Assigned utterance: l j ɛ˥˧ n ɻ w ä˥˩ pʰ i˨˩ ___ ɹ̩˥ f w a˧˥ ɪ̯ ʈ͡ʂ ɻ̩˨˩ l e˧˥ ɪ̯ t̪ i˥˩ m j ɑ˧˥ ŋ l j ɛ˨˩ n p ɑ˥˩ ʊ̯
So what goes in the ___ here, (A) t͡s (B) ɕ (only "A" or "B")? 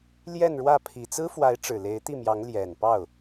A